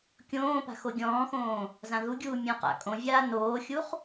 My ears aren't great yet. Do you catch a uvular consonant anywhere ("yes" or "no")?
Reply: yes